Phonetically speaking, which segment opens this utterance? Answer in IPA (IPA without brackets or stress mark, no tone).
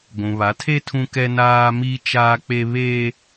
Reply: ɡʷ